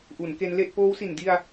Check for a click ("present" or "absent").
absent